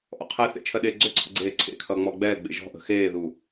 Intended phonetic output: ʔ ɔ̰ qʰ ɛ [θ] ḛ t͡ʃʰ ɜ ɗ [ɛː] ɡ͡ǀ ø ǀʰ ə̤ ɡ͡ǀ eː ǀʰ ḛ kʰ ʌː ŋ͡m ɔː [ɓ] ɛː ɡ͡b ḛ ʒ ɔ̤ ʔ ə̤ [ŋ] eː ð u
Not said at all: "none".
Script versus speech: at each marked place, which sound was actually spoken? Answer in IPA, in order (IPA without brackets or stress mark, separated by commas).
θ, eː, ɡ͡b, x